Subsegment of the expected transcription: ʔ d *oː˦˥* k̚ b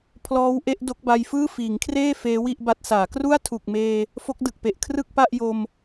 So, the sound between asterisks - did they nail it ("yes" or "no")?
no